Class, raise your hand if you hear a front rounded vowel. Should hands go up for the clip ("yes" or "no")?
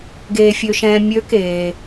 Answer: yes